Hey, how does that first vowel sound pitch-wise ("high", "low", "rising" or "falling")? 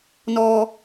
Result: low